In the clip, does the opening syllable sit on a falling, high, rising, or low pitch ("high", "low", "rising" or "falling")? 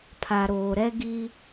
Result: low